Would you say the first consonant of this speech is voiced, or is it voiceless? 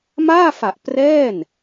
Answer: voiced